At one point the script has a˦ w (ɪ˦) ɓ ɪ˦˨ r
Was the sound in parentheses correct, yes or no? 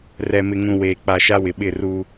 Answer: no